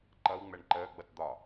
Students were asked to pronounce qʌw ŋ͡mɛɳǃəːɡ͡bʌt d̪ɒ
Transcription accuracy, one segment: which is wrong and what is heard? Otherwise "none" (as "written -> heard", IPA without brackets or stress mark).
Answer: q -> ǃ